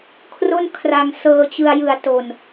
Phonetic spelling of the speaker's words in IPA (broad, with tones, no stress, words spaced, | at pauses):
kʰro˥˩n kʰra˧ŋ sɤː˧t͡ɕɯ˧a̯jɯ˨˩a̯ to˨˩n